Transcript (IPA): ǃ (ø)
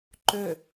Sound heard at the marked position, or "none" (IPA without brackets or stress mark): ø